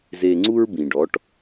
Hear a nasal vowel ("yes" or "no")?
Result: yes